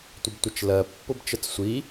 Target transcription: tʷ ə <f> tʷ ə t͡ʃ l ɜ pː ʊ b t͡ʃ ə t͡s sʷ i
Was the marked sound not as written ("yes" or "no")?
yes